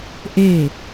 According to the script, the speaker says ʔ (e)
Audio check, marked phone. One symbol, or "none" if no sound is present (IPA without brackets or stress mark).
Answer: e